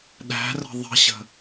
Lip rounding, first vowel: unrounded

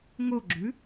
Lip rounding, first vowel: rounded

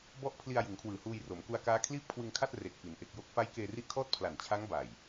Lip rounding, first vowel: rounded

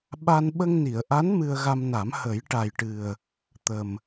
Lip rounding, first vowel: unrounded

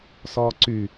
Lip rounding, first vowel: rounded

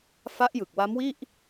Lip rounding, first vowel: unrounded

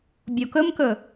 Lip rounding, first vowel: rounded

